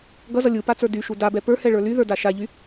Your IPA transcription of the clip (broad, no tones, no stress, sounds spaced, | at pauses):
ɡ ʌ z ʌ lʲ ɯ p a t͡s ə˞ d y ʃ u d a b ɛ p ə˞ h ɛ ɭ ə˞ l y ð ə˞ d a ʃ a ʎ y